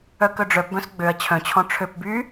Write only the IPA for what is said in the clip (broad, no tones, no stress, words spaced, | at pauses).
œkœɖ͡ʐœpbœ̃s ɡ͡bøɐ̯ t͡ɕʰœ̃t͡ɕʰɔ̃ ʈ͡ʂʰøp by